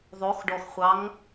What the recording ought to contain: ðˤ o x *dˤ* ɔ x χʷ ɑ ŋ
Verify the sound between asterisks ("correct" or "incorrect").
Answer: incorrect